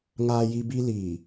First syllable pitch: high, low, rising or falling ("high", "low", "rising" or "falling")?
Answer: high